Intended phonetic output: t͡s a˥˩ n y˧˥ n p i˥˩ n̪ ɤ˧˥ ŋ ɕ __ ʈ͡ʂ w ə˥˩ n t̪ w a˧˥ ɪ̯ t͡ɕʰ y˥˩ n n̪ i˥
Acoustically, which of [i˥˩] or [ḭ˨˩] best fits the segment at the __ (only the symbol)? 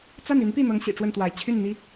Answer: ḭ˨˩